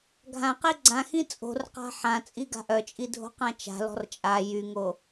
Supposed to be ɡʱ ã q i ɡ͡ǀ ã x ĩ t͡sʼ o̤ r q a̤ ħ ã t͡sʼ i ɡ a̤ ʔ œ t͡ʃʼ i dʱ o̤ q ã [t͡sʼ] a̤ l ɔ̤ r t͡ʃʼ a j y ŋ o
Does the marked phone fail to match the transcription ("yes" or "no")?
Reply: yes